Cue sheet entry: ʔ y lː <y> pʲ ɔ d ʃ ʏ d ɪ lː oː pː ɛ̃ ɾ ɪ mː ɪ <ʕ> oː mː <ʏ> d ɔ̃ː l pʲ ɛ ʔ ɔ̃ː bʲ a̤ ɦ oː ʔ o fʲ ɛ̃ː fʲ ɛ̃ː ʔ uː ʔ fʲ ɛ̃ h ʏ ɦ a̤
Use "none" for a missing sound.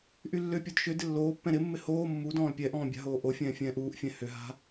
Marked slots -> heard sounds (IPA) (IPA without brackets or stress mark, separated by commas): ʏ, h, u